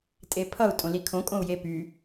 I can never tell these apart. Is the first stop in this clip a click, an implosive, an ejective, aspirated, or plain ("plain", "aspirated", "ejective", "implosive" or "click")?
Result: ejective